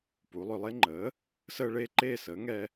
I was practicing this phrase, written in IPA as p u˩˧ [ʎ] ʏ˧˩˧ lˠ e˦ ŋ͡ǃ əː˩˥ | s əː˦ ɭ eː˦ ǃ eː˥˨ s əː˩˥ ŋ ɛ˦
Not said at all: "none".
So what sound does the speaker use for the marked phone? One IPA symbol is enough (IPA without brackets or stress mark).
lˠ